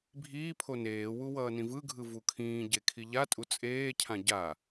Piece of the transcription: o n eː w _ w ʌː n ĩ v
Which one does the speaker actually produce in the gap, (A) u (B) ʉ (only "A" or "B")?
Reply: A